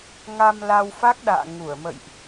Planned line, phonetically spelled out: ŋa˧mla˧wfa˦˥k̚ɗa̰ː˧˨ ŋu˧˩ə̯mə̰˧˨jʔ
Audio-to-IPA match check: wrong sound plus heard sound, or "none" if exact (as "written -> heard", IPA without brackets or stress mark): none